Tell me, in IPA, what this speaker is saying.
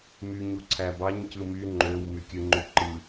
m y ɲ u ǀʰ æ b ɑ ɲ c ɯ m y ŋ͡ǃ ø w m y kʲ ɯ ŋ͡ǃ y ǃ ɯ

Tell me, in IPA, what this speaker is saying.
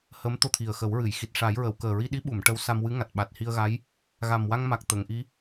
h əː˧˥ m t̪ o˧ t̪ʰ i˨˩ ə̯ x ə˨˩˦ w ɹ ɨ˨˩˨ j x i˨˩ t̚ ʂ a˨˩˦ j ɹ ə˨˩˨ w k əː˨˩ ɹ i˧ ɗ i˧˥ ɓ u˨˩˨ m ʈ ə˧ w s a˧ m w ɨ˧˥ ŋ a˨˩ t̚ ɓ a˨˩ t̚ h i˧ ə̯ ɣ a˧˥ j | ɣ a˨˩ m w a˧ ŋ m a˨˩ k̚ t̪ ə˨˩˨ ŋ ʔ i˧˥

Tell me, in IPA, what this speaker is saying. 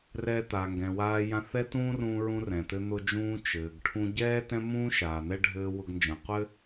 r ɛː˧ t̪ aː˩ ŋ ɡ ɛ̃˩ w aː˧ j ã˧ θ ɛ˥ t ũː˥ r ũː˧ ɹ ũ˧ r ɛ̃˩ t̪ ɘ˧ n̪ ʊ˧ d͡ʒ ũː˧ t͡ʃ ɘː˩ ɡ ʈʰ ũ˧ ɟ ɛː˥ t ɛ̃˥ m ũː˥ ʃ aː˩ n̪ ɛ˥ ɖʱ ɘː˧ w ʊ˧ ɡ n d͡ʒ ə̃ː˩ qʷ ɘ˥

